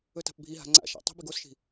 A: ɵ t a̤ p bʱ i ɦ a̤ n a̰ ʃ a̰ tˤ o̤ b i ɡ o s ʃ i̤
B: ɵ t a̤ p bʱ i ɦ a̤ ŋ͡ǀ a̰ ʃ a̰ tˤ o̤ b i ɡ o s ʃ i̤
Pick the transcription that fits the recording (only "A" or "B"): B